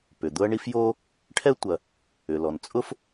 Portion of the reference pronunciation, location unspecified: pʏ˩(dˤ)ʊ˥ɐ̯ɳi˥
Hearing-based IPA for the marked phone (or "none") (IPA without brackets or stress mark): d̪